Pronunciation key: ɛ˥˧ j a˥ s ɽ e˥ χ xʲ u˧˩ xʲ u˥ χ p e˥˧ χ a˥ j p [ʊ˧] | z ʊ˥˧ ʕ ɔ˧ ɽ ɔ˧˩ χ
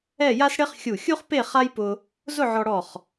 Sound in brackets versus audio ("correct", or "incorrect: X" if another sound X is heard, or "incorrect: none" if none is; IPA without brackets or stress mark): correct